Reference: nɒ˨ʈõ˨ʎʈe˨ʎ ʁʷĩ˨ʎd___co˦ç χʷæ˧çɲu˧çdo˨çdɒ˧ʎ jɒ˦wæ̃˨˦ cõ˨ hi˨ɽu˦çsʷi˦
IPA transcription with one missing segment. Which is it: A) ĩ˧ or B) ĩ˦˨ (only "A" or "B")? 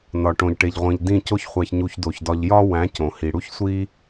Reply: B